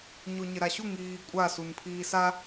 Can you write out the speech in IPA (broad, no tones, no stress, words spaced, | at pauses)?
ɲoɲɪɾaɕu ŋiːkʷʼa sunpʰiːsa